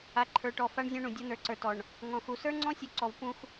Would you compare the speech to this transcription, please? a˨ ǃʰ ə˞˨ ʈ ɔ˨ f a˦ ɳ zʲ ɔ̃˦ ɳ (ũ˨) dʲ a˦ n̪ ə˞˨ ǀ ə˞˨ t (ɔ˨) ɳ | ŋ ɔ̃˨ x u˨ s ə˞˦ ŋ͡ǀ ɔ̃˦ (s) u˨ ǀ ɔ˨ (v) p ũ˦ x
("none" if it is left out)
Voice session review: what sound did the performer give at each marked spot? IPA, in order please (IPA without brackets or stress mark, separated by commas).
ũ˨, ɔ˨, sʲ, v